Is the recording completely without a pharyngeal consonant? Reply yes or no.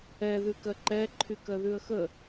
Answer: yes